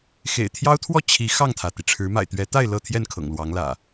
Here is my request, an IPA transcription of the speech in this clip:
x ḛ˨˩ ɪ̯ t̪ʰ j ɑ˦ ʊ̯ t̪ʰ w ɔ˥˨ t͡ɕʰ i˨˦ x ɑ˥˨ ŋ t̪ʰ ä˩ t̪ i˩ ʈ͡ʂʰ ɻ̩˨˦ m a̰˨˩ ɪ̯ t̪ ɥ ɛ˨˦ t̪ a˥˨ ɪ̯ l ɤ˥˨ t̪ʰ j ɛ˥˨ n kʰ ɤ̰˨˩ ŋ l w ɑ˨˦ ŋ l ä̰˨˩

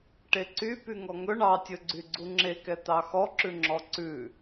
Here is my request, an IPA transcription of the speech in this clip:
ʈ e ǀ y p y ŋ ɔ ŋ ɵ ɳ ɑ tʲ ɵ ɡ͡ǀ y ɡ͡ǀ u ŋ͡ǁ e k ɛ t̪ ɑ x ɔ ǁ ʉ ŋ͡ǁ ɔ ǀ ʉ

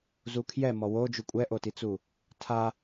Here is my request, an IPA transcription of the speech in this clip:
z u kʰ j ɛ m ɔ w o d͡ʒ u kʷʼ ɛ ʔ o t i t͡s u | tʰ a

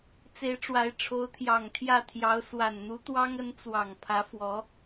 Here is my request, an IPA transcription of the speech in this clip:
t͡s e˧˥ ɪ̯ ʈ͡ʂ w a˧˥ ɪ̯ ʈ͡ʂʰ o˧˥ ʊ̯ t̪ʰ j ɑ˨˩ ŋ t̪ʰ j ä˥˩ t̪ʰ j ɑ˧˥ ʊ̯ s w a˨˩ n n̪ u˧˥ t̪ w ɑ˥ ŋ ə˧˥ n t͡s w ɑ˨˩ ŋ pʰ ä˧˥ f w ɔ˧˥

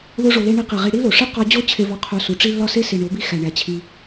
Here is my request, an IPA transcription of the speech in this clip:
ð o˦ ʐ o˧ l e˦ ɳ i˧ q i˨ ʁ i˧ ɽ i˦ l o˨ ʂ i˦ q ɒ˧ d͡ʑ o˦˨ t͡ɕʰ e˧ v ɒ˧ qʰ o˧ s u˨ ʈ͡ʂ i˦ lː ɒ˦ s e˦ s i˨ ɳ o˨˦ b i˧ x æ˨ ɳ æ˨ t͡ɕʰ i˧

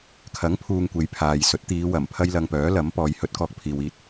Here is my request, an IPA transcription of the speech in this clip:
kʰ ɐ˨˥ ŋ pʰ uː˨ ŋ kʷ e˨˧ j pʰ aː˨ j s ɵ˨˥ t̚ t̪ iː˨˧ w ɐ˨˩ m pʰ ɐ˥ j l ɐ˧ ŋ p œː˨˥ l ɐ˨˥ m p ɔː˨˧ j h ɵ˧ t̚ k ɔː˧ k̚ pʰ iː˨ w iː˧ t̚

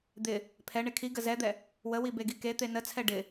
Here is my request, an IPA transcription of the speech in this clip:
d̪ ɪ | pʰ ɛ ɳ ɪ kʰ i ɡ ə z ɛ d̪ ɛ | w ə w i b e ɡ i k e t̪ e n ə t͡sʰ ɛ ɖ ɪ

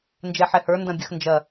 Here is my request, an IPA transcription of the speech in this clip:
n d͡ʒ ɛ ħ ɛ h ə˞ n d ɐ̃ bʲ ə x n d͡ʒ ɐ

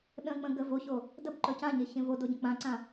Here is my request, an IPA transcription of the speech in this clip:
ɗ ə̃ k͡p ə̃ ɡ ə v o ç o | d ə b ǃ ɵ c ã ɲ e ç ẽ v o d o ɟ ə̃ k͡p ã ǀ ã

